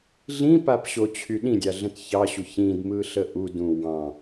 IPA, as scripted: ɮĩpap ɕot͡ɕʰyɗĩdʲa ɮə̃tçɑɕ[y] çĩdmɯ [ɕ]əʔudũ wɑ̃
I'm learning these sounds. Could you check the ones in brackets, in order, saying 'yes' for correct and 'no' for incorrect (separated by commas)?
no, no